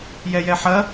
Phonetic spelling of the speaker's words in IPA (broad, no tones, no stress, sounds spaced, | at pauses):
j ɛ j ɛ ħ ɐ